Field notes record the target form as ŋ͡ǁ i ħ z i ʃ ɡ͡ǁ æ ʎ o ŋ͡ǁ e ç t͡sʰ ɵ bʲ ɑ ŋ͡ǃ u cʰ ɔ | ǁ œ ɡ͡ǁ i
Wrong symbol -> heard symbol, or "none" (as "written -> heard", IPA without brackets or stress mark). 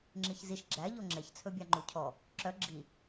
ħ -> ç